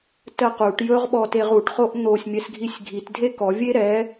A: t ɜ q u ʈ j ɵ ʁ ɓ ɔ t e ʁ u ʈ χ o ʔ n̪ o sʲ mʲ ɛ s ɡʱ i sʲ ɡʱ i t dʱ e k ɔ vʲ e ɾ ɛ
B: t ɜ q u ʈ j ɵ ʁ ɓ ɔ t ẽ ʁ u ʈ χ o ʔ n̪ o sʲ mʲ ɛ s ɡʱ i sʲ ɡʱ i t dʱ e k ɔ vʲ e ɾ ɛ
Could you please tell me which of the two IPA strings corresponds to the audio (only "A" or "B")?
A